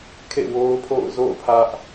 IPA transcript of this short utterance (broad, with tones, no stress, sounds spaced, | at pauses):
kʰ ḛ˦˨ w o˦ ʊ̯ pʰ o̰˦˨ ʊ̯ z o̰˦˨ ʊ̯ pʰ ä˦ ʔ